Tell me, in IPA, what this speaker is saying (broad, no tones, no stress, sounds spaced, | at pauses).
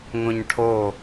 ŋ õ ɲ ʈʰ o